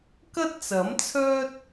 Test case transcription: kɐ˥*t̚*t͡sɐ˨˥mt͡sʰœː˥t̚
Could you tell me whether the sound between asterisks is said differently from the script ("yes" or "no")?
no